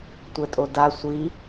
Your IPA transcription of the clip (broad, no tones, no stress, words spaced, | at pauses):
tʷɛtʼoda sʷi